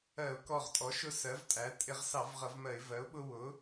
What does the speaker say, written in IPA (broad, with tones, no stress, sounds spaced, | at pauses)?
ɜ˧˩˧ ʊ̯ k ɔ˧˩ ʁ tʼ ɔ˩˥ ʃ ʊ˦ s ɜ˩˥ v tʼ æ˩˥ tʼ ɪ˧˩˧ ʁ s ɑ˧˩˧ v ʁ ʌ˧˩˧ v m ɜ˧˩˧ ɪ̯ v ɜ˩˥ ʊ̯ ɓ ʊ˦ w ʊ˩˥